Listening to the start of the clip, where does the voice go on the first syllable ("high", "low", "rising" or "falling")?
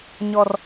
high